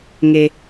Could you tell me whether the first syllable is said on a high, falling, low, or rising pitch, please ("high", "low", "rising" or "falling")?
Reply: low